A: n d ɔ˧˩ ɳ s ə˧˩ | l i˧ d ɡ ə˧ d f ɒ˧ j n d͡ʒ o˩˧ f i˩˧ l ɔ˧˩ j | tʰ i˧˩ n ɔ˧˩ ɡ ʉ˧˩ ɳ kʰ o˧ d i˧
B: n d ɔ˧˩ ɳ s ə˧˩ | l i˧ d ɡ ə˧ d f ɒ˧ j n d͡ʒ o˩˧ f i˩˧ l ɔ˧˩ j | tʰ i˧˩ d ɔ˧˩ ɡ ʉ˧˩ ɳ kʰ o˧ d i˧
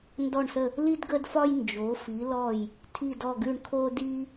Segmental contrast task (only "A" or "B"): B